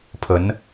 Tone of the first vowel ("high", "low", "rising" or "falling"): rising